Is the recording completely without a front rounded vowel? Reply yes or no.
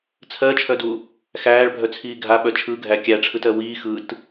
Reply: no